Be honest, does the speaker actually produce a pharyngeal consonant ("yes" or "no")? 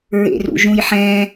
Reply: yes